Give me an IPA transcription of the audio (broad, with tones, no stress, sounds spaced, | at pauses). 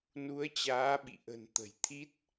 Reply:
n u˨˦ ə̯ t͡ɕ aː˨˦ ɓ ḭ˧˨ ʔ ə̤˨˩ n t̪ ə̤˨˩ j t̪ʰ i˦˥ t̚